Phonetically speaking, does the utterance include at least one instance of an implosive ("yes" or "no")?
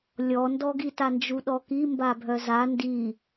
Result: yes